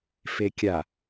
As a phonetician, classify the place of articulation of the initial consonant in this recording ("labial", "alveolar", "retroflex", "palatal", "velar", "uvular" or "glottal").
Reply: labial